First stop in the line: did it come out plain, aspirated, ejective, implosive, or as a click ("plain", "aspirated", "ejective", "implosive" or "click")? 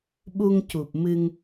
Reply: implosive